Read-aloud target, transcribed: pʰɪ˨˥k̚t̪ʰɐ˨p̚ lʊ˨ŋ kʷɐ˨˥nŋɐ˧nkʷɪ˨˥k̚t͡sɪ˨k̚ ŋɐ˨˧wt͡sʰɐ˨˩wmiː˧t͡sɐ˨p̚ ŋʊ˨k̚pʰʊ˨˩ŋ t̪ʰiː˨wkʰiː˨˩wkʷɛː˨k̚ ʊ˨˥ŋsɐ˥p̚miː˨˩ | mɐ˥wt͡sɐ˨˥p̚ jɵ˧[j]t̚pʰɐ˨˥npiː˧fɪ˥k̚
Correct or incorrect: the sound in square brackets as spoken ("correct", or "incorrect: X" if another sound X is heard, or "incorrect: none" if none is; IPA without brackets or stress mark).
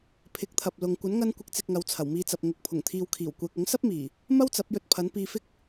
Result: incorrect: none